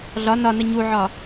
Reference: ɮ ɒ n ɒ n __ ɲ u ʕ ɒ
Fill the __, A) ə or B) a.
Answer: A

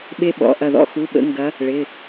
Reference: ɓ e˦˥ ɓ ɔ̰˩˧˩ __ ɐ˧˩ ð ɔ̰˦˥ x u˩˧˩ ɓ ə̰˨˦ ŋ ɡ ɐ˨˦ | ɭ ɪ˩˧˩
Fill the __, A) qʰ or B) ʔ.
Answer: B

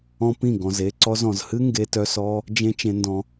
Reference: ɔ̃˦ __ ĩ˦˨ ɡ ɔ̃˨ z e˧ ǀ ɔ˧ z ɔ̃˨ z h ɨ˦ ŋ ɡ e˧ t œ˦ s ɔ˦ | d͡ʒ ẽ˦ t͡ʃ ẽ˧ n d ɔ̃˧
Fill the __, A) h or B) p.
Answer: B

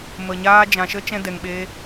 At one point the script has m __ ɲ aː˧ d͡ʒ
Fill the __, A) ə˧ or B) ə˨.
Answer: B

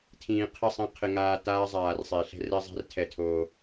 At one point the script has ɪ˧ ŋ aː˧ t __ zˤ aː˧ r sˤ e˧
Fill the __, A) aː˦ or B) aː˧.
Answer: A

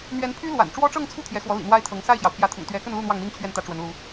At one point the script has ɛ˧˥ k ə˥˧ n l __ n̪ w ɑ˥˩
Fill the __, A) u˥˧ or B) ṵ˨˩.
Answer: A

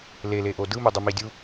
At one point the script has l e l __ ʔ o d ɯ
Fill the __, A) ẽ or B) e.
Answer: B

